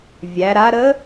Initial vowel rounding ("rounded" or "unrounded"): unrounded